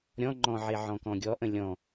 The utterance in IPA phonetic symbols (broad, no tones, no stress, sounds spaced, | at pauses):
ɾʲ ɔ̃ ŋ͡ǃ ɔ̃ ʕ e ʕ ɔ̃ k ɔ̃ ɡʲ ɔ ʔ ə̃ lʲ ɔ̃